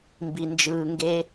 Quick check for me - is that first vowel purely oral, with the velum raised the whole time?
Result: yes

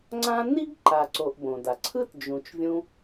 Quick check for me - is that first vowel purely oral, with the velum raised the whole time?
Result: no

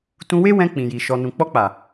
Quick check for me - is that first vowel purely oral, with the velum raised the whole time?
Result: no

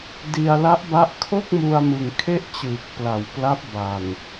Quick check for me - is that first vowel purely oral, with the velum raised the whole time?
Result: yes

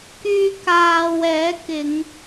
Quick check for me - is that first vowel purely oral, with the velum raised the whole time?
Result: yes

